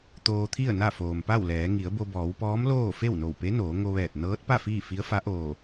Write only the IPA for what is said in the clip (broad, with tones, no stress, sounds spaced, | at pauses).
t̪ oː˧ t̪ʰ i˥˨ ə̯ n a˥˨ f oː˩ m p a˥˨ w l ɛː˩˧ ŋ i˩˧ ə̯ b o˧ b ɔː˩˧ w p ɔː˧˥ m l oː˥˨ f e˥˨ w n o˧˩ w p e˧˥ n oː˩˧ ŋ o˧ ʋ ɛː˧˩ t̚ n ɤː˧˥ t̚ p a˥˨ f iː˥˨ f i˧˥ ə̯ f a˧˥ ʔ oː˧˩